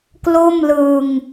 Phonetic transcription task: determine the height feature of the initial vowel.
mid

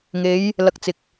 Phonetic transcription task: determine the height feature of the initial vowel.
mid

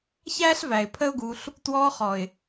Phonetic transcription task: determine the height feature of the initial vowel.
low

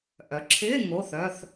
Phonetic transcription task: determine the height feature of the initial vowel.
mid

